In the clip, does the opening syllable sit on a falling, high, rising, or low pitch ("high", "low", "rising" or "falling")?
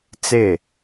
falling